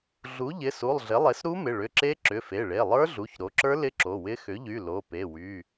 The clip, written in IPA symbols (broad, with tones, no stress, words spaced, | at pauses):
ɮu˩˥ʎɪ˩˧˩su˩˧˩lˠ ɮɪ˩˥lˠe˩˥sɾu˦˥mɪ˩˧˩ ɭʏ˩˧˩ǁe˦˥ ǁʏ˩˧˩fe˩˧˩ɭe˩˧˩ lˠə˞˦˥ɮu˩˧˩çɾo˩˥ǁə˞˦˥ lɪ˦˥ǁo˩˧˩wɪ˦˥ xʏ˩˥ʎy˩˧˩ lo˩˧˩pe˩˧˩ wy˩˧˩